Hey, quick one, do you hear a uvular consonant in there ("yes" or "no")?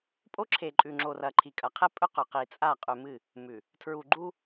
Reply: yes